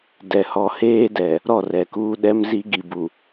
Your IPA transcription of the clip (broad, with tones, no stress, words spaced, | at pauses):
dɛ˨hɔ˨heː˦dɛ˨ | ɾɔ˦˨rɛ˨kuː˦ ɗɛ˦mzi˦ ɡi˨bu˨